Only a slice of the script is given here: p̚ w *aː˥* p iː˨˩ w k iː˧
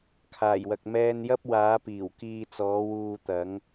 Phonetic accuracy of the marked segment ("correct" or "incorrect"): incorrect